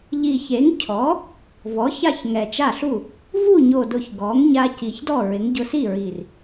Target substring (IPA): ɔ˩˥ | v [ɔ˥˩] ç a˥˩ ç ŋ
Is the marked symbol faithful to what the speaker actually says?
no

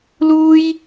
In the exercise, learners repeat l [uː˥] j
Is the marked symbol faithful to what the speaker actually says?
yes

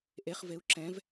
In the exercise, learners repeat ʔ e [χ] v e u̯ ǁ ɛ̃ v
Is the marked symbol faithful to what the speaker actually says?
yes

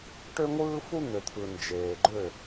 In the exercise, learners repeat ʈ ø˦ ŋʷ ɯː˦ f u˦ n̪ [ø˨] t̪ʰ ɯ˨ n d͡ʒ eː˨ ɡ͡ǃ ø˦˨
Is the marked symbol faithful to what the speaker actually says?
yes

